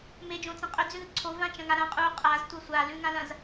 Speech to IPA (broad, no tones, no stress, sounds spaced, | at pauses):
m e d͡ʒ õ t͡s ɐ̃ qʼ ɵ d͡z ʉ ð ɨ ǀʰ o v ã t͡ʃ ɐ̃ ŋ a ɾ ɐ̃ qʼ u qʼ a z tʷ ɐ sʷ a l ʉ ŋ ã l ɐ̃ z